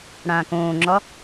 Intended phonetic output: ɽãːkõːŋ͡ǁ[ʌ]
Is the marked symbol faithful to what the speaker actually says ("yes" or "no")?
no